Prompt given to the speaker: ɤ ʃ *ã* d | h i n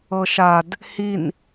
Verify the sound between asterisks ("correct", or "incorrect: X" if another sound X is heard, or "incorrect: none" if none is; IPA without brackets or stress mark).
incorrect: a